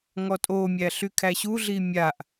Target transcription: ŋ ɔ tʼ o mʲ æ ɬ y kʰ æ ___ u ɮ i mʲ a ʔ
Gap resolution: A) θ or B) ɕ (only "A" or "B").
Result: B